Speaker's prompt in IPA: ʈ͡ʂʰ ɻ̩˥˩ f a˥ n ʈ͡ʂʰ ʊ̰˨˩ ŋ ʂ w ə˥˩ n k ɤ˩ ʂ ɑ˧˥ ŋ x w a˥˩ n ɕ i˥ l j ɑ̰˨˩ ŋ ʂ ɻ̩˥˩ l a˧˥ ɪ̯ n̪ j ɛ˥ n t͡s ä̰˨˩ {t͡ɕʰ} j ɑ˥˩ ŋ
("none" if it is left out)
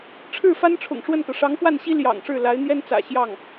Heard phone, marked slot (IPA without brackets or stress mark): ɕ